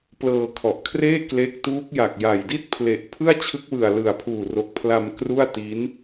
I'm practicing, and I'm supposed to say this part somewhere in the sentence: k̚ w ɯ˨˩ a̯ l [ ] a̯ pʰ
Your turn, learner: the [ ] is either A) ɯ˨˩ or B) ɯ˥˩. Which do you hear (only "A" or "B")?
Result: A